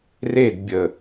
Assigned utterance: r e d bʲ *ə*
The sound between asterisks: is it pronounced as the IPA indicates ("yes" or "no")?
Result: yes